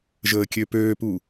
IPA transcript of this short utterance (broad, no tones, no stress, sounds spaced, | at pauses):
ʒ əː kʲ ø p øː p u